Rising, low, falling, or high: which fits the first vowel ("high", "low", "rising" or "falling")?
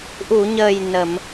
low